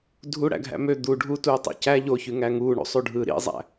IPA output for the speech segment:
dʱ u ɽ æ̰ ɡʱ æ̰ m ø d̪ u ɖʱ u t uː tˤ ḭ c æ ʎ o ç y ŋ æ ŋ uː ɳ ṵ sˤ u ɖʱ ɯː ɾ ḭ zˤ æ̰

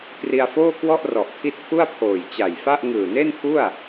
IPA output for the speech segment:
k r i˧ a̯ f oː˥˩ k w ɔ˥˩ ʔ r ɔ˨˩ ʔ tʰ i˦˥ t̚ pʰ u˥˩ a̯ pʰ oː˨˩ j t͡ɕ a˨˩ j f a˥˩ ʔ ŋ ɯː˨˩ n e˥˩ n pʰ u˥˩ a̯

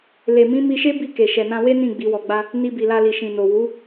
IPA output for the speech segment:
l e˨ m ĩ˨˦ m i˧ ʃ e˦ b i˦˨ k e˨ ʃ ɛ˨ n ã˧ w e˦ n ĩ˦˨ ɡ͡b i˨˦ w ɔ˧ ɡ͡b a˦ | n i˧ b i˨ l a˧ l i˨ ʃ ĩ˨ n o˨ w u˨˦

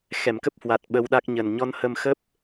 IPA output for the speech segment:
x ɛ˧˩ m k ə˦˥ p̚ h w a˨˩ t̚ ɓ ə˧ w ɗ a˦˥ k̚ ɲ ə˨˩ n ɲ ɔ˧ n h ə˧ m x ə˦˥ p̚

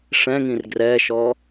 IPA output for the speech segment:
ʂ ɛ̃ ŋ ĩ r ɡ r ɛ ʃ ɔ

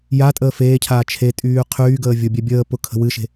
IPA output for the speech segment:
j a tʼ əː f eː cʰ aː t͡ʃʰ e tʼ yː qʰ yː ɡ əː vʲ ʊ bʲ ɛ bʲ əː p ʊ kʰ ə̤ w ɨ ʃ e̤

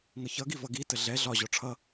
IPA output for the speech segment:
ŋ ʌ ç ʌ ɡ i v ʌ ɡ i t ə ɮ ɛ ɮ ɒ ʑ ɔ ʈ͡ʂʰ ʌ

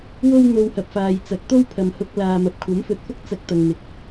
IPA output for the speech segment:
w o˥ w n̪ o˧ w h ɐ˨ p̚ f aː˨ j t͡s ɐ˨˥ k̚ t̪ o˥ w pʰ ɐ˨ m h ʊ˧ k̚ l aː˨ m ɐ˨ p̚ kʷʰ ɐ˨˥ m f ɵ˨ t̚ f ʊ˥ k̚ t͡s ɐ˧ k̚ t̪ ɐ˨ ŋ n̪ ɪ˨ k̚

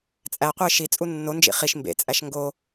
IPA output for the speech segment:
t͡sʼ æ qʷ e ʃ i t͡sʼ u nː o n d͡ʒ ḭ χ i ʃ m b ḛ t͡sʼ æ ʃ ŋ ɡ o

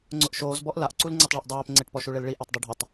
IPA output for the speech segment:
ŋ͡ǀ ʊ ʔ ʃ oː z b ɔ ʔ l a ʔ ǀ u l ŋ͡ǀ e tˤ ɭ ɛ ʔ dˤ oː p ŋ͡ǀ e ʈ p ɔ ʃ u ɭ e l ɭ i ʔ e tˤ dˤ u ɖʱ ʊ tˤ

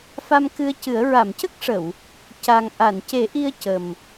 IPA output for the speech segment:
f a˧ m k ɨ˧ ə̯ c ɨ˨˩˦ ə̯ ɹ a˨˩˨ m c ə˦˥ k̚ ʂ ə˨˩˨ w | c a˨˩ ŋ ʔ a˨˩˨ n c e˨˩˦ ʔ i˧ ə̯ c ə˨˩ m

